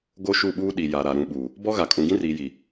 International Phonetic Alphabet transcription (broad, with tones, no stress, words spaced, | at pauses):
ɡo˦ʃu˦˨ɓuː˦ ɗi˨ja˨ɾa˨ ɾũ˨ɓu˨ | bɔ˦ɣa˨ kʼũ˨ɡĩ˦riː˨ji˨